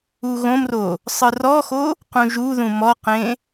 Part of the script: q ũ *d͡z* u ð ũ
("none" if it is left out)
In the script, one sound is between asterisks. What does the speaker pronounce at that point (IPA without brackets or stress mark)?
ʒ